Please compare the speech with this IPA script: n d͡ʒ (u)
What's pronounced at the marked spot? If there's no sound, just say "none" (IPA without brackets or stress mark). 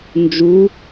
u